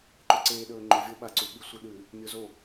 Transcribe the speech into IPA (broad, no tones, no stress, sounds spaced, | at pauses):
ǃ ɵ ǀ eː ɗ ɵː ŋ͡ǃ ɵ vʲ o ɓ a ǀ u ɓ i sʷ i ɗ ʉ | mʲ o z o